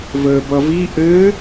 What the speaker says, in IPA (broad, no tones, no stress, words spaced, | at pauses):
vəːbʌvi ʔɘː